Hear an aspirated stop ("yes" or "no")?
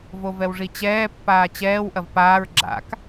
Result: no